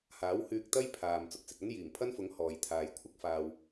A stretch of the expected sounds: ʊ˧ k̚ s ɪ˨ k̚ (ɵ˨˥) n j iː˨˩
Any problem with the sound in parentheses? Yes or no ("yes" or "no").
yes